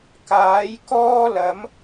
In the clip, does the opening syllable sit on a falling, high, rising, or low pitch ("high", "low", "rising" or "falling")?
rising